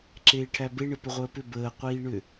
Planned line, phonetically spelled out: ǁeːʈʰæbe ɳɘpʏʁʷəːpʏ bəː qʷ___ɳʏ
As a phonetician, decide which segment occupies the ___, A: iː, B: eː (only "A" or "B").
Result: A